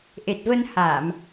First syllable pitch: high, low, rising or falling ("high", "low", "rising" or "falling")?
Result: low